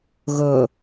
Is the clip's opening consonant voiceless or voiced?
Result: voiced